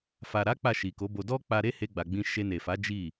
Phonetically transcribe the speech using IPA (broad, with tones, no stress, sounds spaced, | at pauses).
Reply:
f a˨ ɾ a˨˦ k͡p a˦˨ ʃ i˨ k o˨˦ b o˧ d ɔ˦ k͡p a˧ ɾ e˦ h e˧ ɡ͡b a˨ ɡ͡b ĩ˧ ʃ e˧ n e˨ f a˨˦ d͡ʒ i˦˨